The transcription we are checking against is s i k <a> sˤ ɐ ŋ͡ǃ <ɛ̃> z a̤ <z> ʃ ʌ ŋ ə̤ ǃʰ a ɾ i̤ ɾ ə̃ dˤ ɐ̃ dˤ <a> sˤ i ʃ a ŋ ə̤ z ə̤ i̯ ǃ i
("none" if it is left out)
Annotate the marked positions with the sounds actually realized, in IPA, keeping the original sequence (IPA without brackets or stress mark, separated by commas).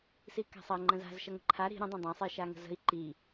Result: a̤, ə̃, z, ã